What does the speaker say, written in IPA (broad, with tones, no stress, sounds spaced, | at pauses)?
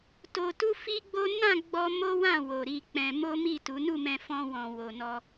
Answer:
t o˧ t u˦ f i˦ ɡ͡b o˦ n ã˦˨ ɡ͡b ɔ˧ m o˦ w ã˦˨ w o˨ ɾ i˧ k͡p ɛ̃˧ m o˦ m i˦˨ t u˨˦ n u˦˨ m ɛ̃˧ f ɔ̃˧ w ɔ̃˨ w o˨ n ɔ˧